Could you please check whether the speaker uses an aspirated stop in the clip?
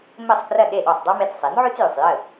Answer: no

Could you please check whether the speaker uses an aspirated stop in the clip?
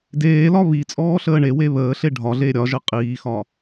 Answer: no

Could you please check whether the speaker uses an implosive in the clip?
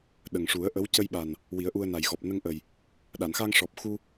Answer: yes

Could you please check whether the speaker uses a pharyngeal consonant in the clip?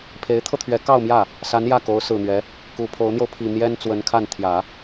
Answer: no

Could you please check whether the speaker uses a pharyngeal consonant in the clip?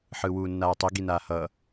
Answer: yes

